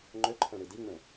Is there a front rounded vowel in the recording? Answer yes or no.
yes